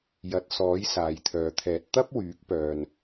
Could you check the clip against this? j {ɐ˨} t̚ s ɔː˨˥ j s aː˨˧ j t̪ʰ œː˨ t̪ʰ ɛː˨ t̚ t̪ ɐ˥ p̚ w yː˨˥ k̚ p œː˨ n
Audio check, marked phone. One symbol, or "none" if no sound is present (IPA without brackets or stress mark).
ɐ˨